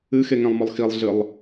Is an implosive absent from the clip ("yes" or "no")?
yes